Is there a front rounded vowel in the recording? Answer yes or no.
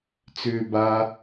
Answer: yes